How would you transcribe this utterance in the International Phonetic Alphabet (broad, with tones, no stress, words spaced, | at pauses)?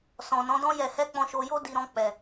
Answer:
sɔ̃˨nɔ̃˨˦dɔ̃˦ jɛ˧hɛ˦ k͡pɔ̃˧ʃo˧jo˦ di˧ɾɔ̃˧ k͡pɛ˨